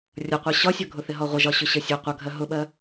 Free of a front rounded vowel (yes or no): yes